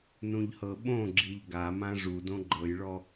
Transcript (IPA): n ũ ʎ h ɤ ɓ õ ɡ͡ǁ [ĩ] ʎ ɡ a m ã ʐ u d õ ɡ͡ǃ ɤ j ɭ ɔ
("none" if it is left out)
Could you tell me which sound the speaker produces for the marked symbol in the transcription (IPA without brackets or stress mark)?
i